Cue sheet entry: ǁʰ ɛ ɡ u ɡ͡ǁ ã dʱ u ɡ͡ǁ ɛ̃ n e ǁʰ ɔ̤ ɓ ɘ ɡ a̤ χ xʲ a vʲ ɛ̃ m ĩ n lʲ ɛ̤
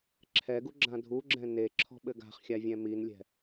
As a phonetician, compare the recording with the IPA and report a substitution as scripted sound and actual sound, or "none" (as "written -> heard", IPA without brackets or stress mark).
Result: ĩ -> i